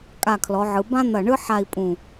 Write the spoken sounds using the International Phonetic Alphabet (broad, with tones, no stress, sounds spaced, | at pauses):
kʼ a˧˩ kʰ l ɔ˩˧ ʕ ɯ˩˧ b ã˥ n̪ ɐ˧˩ ɳ ɯ˥ ħ a˥˧ i̯ pʼ ũ˧˩